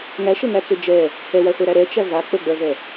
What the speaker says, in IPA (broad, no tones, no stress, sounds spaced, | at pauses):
ŋ æ ʃ ə ŋ æ t͡s ʏ d͡ʒ ɛ | h ɛ w æ χʷ ɛ ɾ æ ɾ ɛ t͡ʃ æ v a k͡p ə ɡ͡b ɜ v ɛ